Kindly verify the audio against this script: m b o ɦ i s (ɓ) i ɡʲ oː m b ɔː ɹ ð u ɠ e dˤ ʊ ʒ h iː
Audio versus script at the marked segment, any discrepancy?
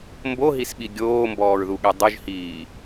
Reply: no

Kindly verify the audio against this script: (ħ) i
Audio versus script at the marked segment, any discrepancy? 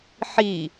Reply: no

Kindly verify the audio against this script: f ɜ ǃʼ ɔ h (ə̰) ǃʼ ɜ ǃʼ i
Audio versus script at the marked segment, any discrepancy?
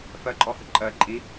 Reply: yes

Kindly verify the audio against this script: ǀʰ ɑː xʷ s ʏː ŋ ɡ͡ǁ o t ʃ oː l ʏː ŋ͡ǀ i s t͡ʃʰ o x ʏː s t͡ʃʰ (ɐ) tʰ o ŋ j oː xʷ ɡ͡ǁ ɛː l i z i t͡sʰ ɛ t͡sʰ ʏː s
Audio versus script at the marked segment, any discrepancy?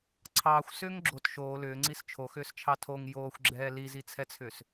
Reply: yes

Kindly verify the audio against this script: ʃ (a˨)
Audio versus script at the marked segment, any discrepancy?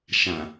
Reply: yes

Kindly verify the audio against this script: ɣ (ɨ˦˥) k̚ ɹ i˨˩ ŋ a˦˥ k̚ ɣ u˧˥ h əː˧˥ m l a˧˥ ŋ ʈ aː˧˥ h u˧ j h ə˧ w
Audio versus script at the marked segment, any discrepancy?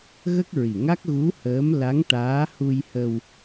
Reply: yes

